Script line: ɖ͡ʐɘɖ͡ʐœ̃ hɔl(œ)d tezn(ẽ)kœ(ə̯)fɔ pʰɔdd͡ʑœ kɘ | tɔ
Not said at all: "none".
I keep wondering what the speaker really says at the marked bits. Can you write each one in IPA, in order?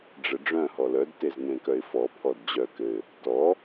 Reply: œ, ẽ, ɪ̯

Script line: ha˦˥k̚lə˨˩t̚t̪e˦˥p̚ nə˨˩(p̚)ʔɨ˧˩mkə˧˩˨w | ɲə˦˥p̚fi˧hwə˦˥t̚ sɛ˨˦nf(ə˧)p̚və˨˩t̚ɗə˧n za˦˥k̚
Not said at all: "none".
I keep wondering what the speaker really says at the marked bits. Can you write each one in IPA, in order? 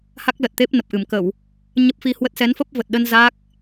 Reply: p̚, ə˦˥

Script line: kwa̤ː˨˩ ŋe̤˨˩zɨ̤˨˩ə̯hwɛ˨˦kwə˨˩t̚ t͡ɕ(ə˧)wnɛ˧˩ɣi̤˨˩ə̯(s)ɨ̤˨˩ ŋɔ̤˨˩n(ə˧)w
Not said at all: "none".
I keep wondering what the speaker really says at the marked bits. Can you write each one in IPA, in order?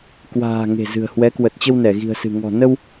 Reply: ə˧, s, ə˧

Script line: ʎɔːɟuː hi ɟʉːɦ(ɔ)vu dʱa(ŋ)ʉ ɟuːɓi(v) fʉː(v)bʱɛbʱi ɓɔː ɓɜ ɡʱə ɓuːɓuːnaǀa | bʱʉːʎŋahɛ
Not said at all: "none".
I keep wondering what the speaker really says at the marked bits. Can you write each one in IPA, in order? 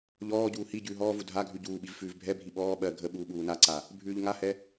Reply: ɔː, ɡʱ, v, v

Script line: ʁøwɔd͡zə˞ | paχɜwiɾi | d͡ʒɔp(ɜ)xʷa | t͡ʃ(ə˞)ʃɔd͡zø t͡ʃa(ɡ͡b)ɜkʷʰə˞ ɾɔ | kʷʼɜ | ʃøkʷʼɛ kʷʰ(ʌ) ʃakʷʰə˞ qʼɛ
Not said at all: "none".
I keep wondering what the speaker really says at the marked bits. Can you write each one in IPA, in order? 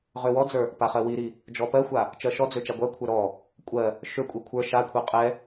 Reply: ɜ, ɜ, ɡʷ, ə˞

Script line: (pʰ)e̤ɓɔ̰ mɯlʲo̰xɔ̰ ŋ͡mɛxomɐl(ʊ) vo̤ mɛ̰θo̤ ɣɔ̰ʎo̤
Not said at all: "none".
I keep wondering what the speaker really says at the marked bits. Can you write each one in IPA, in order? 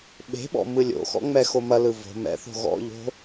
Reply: ɓ, ɯ

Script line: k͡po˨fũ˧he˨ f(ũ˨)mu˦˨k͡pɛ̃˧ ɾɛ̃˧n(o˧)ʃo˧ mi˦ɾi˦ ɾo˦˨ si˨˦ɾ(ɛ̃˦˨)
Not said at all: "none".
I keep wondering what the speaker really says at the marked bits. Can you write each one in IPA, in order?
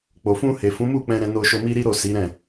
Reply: ũ˨˦, o˧, ɛ̃˦˨

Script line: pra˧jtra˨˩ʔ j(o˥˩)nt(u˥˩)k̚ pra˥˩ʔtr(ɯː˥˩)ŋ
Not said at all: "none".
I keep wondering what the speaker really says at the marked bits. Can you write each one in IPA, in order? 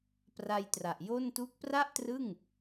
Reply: o˥˩, u˥˩, ɯ˥˩

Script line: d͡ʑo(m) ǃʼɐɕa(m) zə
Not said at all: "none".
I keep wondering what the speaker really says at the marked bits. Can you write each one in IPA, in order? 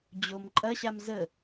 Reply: m, m

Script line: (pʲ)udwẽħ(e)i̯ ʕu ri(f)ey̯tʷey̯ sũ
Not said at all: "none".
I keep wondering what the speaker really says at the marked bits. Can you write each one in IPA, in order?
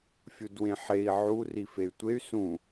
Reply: fʲ, e, f

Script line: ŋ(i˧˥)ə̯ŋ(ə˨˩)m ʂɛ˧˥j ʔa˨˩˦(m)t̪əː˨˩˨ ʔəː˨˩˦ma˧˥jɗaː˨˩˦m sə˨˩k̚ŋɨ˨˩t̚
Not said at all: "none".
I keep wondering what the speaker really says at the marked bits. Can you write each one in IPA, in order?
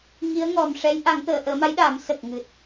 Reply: i˧˥, ɔ˨˩, ŋ

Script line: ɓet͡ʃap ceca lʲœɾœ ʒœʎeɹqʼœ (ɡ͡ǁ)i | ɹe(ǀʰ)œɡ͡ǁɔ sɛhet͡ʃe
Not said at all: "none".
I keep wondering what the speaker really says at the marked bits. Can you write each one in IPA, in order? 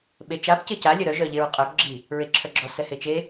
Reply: ɡ͡ǁ, ǁʰ

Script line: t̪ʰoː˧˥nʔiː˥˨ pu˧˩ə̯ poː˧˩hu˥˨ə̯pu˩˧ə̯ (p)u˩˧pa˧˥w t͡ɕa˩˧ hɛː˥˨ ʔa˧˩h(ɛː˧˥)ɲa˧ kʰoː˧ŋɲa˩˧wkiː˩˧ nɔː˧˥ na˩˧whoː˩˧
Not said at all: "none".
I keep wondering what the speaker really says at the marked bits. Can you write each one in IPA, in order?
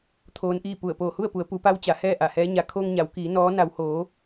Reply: p, ɛː˧˥

